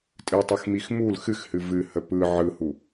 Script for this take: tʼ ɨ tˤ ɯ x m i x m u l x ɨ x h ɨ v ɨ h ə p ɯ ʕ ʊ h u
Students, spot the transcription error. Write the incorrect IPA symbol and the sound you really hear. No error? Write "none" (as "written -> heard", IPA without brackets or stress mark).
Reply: ʊ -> ɯ